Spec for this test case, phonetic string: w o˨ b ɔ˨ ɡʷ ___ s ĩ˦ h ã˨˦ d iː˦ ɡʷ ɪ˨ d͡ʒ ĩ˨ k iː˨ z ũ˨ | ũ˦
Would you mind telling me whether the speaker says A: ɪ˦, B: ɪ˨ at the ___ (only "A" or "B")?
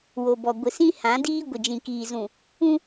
B